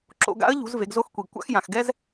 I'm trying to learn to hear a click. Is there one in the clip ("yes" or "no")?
yes